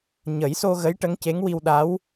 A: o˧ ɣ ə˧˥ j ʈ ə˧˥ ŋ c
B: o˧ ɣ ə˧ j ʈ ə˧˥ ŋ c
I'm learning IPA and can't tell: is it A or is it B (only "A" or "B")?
A